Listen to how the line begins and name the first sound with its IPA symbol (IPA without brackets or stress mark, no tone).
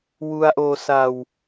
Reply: w